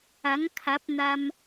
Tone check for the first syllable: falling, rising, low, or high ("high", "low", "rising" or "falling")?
rising